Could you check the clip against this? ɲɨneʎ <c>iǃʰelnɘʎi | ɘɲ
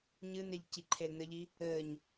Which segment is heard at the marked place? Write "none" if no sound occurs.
c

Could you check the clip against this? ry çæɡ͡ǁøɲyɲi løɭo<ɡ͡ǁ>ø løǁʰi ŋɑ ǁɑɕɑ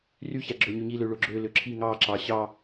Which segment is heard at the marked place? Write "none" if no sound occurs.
ɡ͡ǁ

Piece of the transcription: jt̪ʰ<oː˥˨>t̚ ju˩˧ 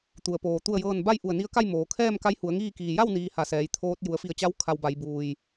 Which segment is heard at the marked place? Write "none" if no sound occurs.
oː˧˥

